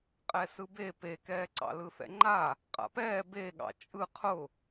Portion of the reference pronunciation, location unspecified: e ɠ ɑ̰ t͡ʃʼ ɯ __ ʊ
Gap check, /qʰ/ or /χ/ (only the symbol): qʰ